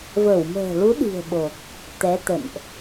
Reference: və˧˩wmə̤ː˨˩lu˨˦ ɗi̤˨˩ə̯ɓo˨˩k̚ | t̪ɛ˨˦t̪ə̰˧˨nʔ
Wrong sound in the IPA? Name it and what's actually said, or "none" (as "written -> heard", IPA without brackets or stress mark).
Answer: none